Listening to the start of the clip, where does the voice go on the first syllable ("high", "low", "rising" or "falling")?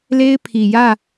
high